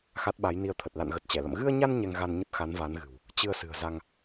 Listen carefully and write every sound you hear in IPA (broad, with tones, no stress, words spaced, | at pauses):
xa˦˥t̚ɓa˨˦jni˧ə̯t̪ʰə˨˩t̚ la̰˧˨nɣə˨˩t̚ t͡ɕɛ˧˩lə̰˧˨m ɣɨ˧ə̯ɲa˧n ɲɛ˧ŋɣa˧nɲə˦˥t̚ xa˨˦nva˨˦nɣɨ̤˨˩w | t͡ɕɨ˧ə̯sɨ̤˨˩ə̯za˧ŋ